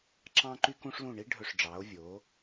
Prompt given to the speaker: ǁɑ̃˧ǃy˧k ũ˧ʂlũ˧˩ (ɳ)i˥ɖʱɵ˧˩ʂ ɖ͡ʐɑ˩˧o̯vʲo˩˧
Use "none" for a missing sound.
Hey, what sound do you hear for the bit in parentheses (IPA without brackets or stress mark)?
ɳ